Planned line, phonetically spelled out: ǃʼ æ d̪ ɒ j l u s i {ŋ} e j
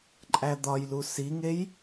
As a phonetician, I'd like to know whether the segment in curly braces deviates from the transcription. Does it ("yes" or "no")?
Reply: no